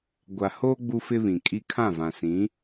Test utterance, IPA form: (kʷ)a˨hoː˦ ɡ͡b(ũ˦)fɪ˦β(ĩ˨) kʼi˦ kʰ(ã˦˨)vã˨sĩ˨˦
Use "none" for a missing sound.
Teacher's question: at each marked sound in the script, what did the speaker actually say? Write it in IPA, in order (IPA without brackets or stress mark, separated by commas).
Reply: ɡʷ, u˦, ĩ˨, ã˦˨